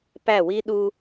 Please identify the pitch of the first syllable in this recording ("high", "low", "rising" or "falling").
falling